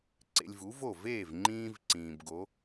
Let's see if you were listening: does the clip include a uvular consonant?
no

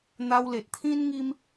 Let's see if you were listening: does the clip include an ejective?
no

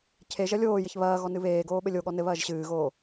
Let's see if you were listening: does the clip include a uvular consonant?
no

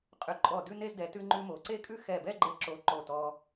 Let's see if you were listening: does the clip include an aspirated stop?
no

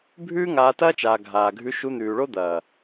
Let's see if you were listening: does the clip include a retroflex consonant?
yes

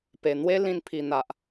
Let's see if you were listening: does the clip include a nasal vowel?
yes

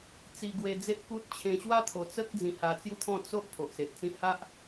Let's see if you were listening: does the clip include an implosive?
no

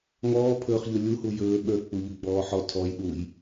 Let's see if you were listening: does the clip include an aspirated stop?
yes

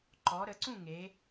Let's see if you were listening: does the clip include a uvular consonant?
no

